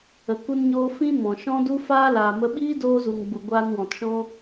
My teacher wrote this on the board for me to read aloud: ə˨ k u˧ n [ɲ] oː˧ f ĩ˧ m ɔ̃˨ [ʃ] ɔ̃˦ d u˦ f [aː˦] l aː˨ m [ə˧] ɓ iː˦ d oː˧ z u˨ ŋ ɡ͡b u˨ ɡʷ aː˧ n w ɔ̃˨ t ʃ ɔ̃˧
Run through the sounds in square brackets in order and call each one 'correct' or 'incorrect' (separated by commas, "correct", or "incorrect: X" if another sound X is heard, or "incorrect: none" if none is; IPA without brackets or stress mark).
correct, correct, correct, correct